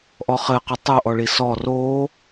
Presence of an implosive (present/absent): absent